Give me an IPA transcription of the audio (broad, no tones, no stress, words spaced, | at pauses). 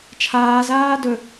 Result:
t͡ʃʰaːzaː dɵ